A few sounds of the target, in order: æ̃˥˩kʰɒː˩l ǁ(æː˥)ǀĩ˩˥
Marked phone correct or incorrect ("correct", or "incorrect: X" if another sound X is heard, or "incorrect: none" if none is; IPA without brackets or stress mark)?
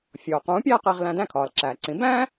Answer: incorrect: æː˩